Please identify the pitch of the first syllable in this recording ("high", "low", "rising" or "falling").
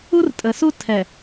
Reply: high